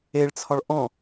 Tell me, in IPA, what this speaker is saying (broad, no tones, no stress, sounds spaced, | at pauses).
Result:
e ɭ t͡sʰ ɒ ɭ ʔ ɔ̃